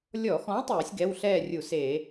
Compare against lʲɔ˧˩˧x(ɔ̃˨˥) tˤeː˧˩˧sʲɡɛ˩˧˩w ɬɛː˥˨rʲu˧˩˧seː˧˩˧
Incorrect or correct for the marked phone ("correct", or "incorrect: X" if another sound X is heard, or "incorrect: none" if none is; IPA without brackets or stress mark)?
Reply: correct